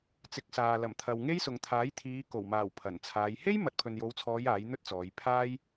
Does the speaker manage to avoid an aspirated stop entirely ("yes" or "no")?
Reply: no